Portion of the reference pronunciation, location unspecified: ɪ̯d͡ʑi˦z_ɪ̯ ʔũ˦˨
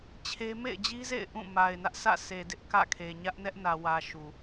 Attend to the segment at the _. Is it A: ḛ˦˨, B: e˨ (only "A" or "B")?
A